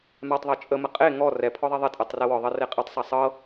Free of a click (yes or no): yes